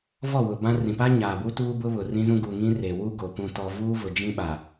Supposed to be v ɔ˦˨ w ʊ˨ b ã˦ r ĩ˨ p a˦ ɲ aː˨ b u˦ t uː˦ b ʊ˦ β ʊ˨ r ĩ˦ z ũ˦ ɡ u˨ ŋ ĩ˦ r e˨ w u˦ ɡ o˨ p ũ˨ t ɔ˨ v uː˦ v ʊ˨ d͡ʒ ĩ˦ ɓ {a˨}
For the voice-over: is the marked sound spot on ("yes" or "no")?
yes